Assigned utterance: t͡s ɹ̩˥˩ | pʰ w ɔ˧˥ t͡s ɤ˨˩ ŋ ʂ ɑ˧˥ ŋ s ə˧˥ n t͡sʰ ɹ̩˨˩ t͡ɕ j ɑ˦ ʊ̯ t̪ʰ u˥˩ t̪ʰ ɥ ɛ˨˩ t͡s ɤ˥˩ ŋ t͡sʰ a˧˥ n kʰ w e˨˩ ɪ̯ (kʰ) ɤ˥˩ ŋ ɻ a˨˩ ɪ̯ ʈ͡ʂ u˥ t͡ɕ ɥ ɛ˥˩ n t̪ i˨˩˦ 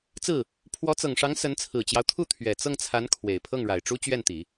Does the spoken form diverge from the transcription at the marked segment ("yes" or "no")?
yes